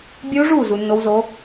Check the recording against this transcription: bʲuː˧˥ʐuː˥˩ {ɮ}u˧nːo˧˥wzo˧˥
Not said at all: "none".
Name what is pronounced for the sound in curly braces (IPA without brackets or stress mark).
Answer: z